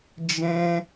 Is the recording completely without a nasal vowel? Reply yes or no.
no